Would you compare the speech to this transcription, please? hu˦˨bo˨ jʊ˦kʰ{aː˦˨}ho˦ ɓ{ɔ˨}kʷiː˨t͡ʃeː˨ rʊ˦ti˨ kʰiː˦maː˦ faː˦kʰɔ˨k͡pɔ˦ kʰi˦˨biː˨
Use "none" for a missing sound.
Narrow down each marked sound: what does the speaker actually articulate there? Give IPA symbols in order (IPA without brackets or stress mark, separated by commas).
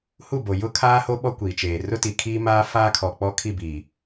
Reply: aː˦, ɔ˦